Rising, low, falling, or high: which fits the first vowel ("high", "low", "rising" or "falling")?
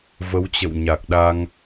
rising